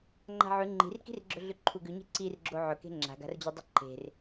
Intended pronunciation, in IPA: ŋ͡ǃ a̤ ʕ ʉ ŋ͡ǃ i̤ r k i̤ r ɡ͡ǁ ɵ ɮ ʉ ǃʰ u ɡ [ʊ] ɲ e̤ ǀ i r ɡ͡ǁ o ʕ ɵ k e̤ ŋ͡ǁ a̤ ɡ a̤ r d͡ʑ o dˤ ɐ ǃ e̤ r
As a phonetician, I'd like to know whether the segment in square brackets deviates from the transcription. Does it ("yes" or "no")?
yes